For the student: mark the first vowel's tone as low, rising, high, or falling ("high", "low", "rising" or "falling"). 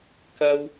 high